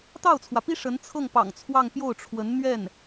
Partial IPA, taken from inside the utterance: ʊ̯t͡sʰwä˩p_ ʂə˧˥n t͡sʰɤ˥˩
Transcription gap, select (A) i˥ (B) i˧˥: A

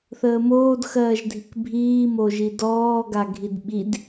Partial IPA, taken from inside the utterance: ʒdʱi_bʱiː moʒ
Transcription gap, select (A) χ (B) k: B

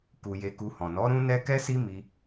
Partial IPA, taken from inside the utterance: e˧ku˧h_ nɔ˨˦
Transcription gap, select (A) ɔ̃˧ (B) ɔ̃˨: B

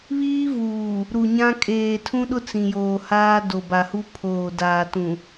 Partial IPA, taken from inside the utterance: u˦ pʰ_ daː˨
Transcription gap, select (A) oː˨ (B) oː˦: A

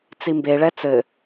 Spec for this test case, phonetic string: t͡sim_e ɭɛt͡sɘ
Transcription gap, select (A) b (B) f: A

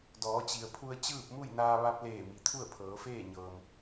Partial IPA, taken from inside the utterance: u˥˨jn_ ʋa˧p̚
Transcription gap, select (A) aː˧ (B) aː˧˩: A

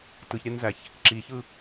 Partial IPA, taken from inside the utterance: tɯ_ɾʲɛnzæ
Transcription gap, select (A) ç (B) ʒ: A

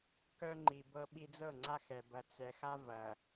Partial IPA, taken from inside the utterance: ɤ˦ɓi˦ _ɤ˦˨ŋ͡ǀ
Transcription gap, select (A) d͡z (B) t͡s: A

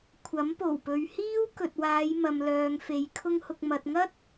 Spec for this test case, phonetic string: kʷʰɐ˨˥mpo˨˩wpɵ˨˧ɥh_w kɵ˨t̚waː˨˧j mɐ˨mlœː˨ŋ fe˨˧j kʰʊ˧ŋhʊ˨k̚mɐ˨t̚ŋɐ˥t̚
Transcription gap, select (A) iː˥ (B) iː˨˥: A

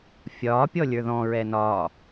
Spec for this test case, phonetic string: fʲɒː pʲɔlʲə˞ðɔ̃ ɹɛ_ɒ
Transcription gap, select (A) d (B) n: B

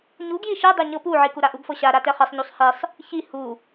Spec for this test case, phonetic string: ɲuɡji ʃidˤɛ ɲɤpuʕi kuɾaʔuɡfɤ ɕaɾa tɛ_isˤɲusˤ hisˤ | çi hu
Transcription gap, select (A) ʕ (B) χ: B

